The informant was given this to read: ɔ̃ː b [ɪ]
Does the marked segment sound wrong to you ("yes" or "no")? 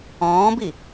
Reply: yes